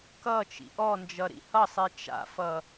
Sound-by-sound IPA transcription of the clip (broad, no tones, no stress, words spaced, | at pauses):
kʌ t͡ʃḭʔɔnd͡ʒʌ ɾḭhʌsˤi t͡ʃa̰fʌ